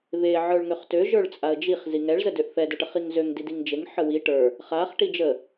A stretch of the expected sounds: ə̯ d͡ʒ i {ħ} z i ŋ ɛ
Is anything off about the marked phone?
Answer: yes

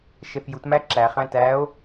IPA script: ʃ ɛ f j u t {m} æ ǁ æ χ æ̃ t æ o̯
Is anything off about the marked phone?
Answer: no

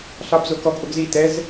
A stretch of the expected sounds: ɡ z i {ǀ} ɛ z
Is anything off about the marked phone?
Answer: yes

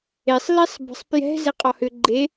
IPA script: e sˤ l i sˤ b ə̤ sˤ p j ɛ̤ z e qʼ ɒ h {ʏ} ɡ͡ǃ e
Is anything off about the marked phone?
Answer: no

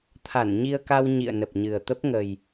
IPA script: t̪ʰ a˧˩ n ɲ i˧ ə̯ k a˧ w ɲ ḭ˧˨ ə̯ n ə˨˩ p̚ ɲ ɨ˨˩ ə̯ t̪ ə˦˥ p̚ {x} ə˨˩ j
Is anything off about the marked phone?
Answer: yes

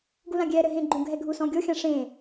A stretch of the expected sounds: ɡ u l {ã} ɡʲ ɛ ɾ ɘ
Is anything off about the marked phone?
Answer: no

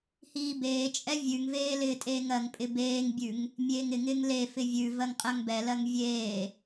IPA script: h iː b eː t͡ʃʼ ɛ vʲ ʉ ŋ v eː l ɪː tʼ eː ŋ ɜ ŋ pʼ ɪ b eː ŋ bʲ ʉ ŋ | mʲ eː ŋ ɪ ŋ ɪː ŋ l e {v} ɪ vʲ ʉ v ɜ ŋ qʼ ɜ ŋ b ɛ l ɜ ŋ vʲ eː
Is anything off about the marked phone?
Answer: yes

